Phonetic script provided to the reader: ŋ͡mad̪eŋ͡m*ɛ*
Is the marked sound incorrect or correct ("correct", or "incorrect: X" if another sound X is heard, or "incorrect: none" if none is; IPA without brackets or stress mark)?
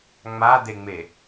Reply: incorrect: e